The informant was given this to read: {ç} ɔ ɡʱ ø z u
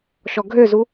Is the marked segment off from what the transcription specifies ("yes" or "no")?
yes